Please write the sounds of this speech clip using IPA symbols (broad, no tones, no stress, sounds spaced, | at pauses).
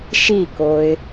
ʃ i k o ɪ̯